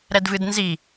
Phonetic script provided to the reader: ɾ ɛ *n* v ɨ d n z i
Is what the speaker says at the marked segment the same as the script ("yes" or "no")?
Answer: no